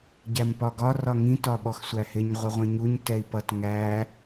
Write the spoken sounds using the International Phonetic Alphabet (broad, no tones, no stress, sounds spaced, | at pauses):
ɟ æ m p ɒ ɡ ɒ r ɒ ŋ ĩ t ɒ ɓ ɔ x sʷ æ h ɪ ɲ ʁʷ ɪ ʁʷ ĩ ɲ u ɲ t ɛ i̯ p ʌ t ŋ æ